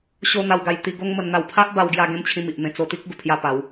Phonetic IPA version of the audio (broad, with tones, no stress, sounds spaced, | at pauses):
ɕ o˦ n̪ a˧ w ɡ a˧ j t̪ i˧ ɡ o˦ ŋ m ə˧ n n̪ a˧ w pʰ a˦ ʔ b a˧ w ɡ j a˧ ɡ ẽ˦ m t͡ɕʰ ĩ˧ m i˨ ʔ m ẽ˧ t͡s o˧ t̪ i˦ k̚ ɡ u˨˩ pʰ j a˥˧ p a˨˦ w